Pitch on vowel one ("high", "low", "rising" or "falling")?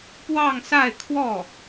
falling